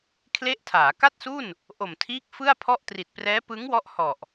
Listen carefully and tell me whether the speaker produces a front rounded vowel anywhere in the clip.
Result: no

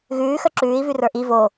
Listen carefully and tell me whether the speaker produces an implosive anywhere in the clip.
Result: no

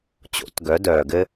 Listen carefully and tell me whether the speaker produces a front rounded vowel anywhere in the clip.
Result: yes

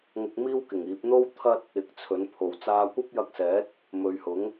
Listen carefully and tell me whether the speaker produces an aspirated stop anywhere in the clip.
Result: yes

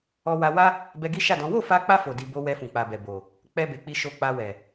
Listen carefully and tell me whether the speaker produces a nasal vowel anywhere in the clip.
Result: yes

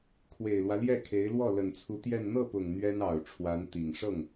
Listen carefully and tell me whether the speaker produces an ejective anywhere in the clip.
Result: no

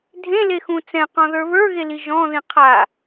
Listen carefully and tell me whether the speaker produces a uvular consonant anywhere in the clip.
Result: yes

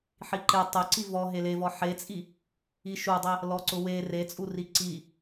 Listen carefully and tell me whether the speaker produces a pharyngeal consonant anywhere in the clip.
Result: yes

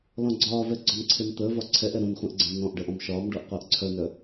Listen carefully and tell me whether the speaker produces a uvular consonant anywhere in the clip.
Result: yes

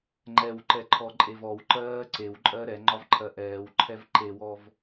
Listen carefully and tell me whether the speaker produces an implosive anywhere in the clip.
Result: no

